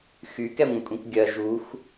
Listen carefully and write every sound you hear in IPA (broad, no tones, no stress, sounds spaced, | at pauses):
x y k ɛ ŋʷ ə̃ kʷʼ ĩ kʷ ɡʲ ɐ ʒ u x